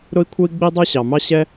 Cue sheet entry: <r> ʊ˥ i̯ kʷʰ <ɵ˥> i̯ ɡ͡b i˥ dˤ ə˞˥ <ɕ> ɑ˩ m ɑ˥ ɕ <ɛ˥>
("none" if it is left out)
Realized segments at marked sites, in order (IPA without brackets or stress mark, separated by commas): ɾ, ə˥, ɕ, ɛ˥